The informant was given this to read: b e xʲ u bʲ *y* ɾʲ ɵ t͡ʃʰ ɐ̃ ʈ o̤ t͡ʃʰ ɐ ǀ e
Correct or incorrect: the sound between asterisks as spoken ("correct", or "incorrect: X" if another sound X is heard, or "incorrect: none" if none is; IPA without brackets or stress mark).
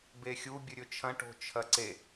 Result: incorrect: ɨ